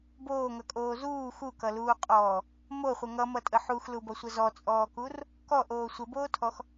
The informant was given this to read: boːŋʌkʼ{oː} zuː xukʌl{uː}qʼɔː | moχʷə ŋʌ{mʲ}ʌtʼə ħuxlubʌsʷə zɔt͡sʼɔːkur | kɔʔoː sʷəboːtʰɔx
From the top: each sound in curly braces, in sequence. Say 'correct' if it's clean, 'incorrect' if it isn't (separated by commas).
correct, correct, incorrect